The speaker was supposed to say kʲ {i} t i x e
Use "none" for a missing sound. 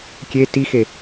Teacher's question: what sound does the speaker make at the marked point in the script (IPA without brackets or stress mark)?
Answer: e